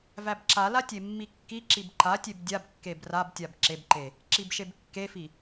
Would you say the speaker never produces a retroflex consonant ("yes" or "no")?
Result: yes